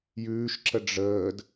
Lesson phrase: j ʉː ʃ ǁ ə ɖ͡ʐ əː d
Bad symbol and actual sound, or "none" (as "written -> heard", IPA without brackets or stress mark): none